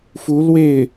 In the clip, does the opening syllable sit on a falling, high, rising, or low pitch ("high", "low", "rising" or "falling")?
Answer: rising